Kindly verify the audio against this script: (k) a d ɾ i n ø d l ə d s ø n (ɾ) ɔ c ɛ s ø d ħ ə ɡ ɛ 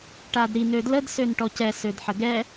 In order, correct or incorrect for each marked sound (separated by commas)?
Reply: incorrect, incorrect